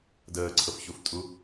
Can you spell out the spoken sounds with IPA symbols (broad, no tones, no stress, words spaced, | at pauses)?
dəːǀʰɤfçuftʼu